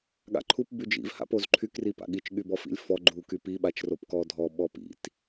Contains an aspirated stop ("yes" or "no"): yes